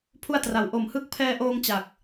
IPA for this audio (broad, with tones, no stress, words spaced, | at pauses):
pʰu˥˩a̯tra˨˩w ʔo˨˩mhɯ˦˥k̚pʰɛː˧ʔoː˧ŋ t͡ɕa˨˩k̚